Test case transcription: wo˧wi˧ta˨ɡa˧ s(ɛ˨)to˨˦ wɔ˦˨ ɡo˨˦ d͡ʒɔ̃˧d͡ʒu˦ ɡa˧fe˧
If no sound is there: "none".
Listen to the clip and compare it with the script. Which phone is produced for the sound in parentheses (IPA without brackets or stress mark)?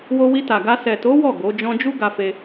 ɛ˨